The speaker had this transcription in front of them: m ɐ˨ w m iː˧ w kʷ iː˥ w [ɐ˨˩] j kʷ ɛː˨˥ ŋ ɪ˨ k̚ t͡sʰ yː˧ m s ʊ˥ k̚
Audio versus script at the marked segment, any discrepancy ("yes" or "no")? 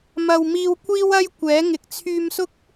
yes